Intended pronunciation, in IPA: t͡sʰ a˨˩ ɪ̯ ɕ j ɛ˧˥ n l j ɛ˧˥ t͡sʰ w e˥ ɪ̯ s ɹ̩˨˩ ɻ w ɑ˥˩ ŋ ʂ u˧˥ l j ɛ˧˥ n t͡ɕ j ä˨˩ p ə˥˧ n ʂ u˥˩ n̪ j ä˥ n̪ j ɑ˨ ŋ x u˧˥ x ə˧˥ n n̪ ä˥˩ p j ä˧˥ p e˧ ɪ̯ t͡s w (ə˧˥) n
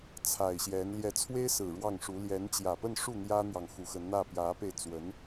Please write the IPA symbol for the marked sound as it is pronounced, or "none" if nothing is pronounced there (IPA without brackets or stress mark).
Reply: ə˧˥